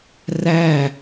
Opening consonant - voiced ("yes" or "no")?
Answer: yes